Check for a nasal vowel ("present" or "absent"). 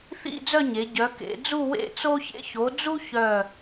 absent